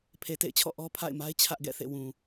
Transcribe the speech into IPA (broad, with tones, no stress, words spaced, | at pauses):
pʰe˨tḛ˦˨ɪ̯t͡ɕʰɔ̰˦˨ ʔɔ˦pʰa̰˦˨ɪ̯ma˦ɪ̯ t͡ɕʰä˦ʔɡɛ̰˦˨θḛ˦˨ wũ˨